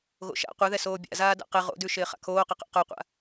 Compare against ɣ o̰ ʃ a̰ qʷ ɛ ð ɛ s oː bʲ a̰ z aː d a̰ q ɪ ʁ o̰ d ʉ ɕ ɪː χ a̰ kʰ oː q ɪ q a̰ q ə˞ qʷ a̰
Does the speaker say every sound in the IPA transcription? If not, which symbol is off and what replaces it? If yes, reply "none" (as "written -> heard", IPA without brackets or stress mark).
ɕ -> ʃ